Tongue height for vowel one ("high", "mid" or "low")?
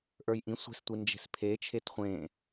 mid